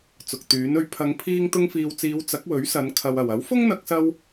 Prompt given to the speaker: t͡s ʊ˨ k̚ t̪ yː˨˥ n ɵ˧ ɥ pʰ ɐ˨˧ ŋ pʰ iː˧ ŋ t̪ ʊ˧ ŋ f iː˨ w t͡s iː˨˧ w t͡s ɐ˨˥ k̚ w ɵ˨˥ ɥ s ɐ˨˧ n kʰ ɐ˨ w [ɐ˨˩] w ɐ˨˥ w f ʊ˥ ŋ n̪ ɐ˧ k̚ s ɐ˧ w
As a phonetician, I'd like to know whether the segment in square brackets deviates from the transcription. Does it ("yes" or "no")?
no